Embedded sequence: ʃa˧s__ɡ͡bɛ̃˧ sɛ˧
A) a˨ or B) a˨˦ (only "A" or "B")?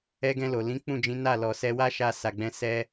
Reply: A